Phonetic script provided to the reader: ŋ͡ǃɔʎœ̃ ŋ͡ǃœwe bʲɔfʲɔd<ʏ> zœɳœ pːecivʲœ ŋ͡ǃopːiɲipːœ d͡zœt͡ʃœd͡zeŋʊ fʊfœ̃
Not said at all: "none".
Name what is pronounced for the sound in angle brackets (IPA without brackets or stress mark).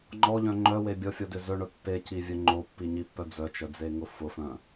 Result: ʏ